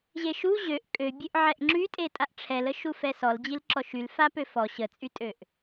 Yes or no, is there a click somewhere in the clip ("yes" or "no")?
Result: yes